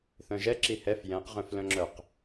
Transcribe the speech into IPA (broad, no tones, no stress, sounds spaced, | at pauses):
θ œ̃ ʒ ɛ ǁ i h ɛ f j ɛ̃ q ʁ œ̃ f l œ̃ ŋ͡ǁ œ q